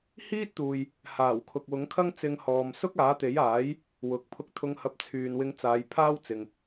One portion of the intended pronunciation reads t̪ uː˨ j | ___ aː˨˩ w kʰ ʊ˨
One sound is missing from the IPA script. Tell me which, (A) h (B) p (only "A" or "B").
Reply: A